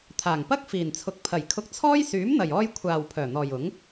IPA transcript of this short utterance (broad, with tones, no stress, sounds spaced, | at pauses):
t̪ʰ aː˨˩ ŋ p ɐ˥ k̚ f iː˨˩ n t͡sʰ ʊ˨˥ k̚ pʰ ɐ˨˩ j kʰ ʊ˧ k̚ t͡sʰ ɔː˥ j s yː˨˥ m n̪ ɐ˨˩ j ɔː˧ j kʷʰ aː˨ w pʰ œː˨˩ n̪ ɔː˨ j ʊ˨˥ ŋ